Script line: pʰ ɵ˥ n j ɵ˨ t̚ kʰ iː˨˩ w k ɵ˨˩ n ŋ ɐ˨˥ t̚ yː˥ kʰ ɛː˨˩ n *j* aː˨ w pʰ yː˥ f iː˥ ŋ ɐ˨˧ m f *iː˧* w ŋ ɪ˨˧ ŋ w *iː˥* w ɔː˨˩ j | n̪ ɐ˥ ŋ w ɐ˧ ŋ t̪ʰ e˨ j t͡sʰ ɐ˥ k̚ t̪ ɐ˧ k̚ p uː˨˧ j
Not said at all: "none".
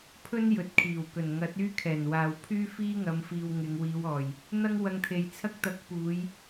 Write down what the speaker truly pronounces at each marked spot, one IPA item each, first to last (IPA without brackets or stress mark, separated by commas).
w, iː˧, iː˨˧